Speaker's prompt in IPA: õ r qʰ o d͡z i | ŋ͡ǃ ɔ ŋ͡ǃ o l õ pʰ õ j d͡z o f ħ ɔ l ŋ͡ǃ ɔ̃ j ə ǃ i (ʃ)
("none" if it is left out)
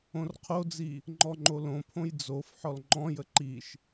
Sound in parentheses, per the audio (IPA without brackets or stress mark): ʃ